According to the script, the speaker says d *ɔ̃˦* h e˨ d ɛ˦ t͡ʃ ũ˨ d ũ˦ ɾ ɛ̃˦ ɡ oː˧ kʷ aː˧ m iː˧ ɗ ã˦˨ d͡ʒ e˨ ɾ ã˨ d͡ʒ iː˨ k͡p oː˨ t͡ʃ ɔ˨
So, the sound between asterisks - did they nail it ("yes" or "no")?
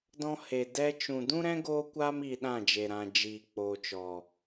yes